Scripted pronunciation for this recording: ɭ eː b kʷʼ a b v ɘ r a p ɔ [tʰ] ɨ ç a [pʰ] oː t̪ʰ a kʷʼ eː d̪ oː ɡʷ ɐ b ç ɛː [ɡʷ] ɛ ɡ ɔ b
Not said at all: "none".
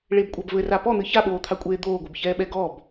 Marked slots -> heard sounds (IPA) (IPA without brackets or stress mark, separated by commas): n̪, ɓ, ɓ